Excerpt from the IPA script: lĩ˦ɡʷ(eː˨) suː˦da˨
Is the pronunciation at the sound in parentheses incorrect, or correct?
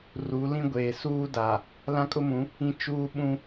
correct